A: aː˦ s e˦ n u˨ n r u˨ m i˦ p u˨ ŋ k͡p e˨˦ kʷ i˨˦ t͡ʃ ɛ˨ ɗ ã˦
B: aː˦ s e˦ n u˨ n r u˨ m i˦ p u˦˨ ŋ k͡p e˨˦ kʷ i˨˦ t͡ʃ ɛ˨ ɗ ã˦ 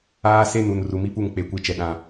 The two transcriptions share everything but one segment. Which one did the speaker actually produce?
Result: B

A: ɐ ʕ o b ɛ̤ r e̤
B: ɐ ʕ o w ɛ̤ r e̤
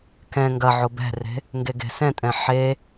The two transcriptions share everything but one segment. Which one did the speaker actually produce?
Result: A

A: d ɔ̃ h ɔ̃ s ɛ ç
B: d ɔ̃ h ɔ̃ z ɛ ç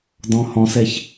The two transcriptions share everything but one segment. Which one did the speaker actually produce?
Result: A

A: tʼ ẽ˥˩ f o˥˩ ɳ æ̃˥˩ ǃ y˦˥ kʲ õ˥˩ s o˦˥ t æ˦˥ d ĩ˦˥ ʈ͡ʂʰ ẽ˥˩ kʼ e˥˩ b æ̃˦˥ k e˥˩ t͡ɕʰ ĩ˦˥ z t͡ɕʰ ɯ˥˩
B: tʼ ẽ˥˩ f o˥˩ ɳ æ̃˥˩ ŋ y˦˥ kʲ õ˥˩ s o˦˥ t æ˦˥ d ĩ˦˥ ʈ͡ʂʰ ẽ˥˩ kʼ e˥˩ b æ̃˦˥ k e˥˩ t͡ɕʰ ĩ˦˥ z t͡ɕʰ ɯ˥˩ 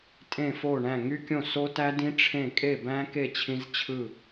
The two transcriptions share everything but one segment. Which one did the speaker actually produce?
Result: B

